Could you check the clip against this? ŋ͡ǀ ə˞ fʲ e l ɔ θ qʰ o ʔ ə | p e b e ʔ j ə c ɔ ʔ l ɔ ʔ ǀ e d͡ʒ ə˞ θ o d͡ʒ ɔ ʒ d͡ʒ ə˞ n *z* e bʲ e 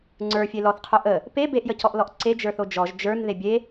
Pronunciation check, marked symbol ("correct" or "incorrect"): incorrect